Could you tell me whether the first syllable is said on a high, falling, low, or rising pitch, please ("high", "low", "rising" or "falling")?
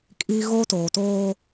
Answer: high